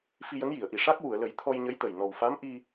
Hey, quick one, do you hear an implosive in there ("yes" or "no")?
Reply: no